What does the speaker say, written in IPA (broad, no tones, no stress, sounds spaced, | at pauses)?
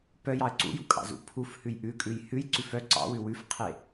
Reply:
p œ j ɑ ə̯ ǀ ṵ j ṵ kʼ ɑ̰ z ṵ pʰ u f h ʉ j ʔ ʉ kʼ ʉ j h ʉ j ǀ ʉ f œ ǀ ɑ̰ w ʉ w ʉ f qʰ e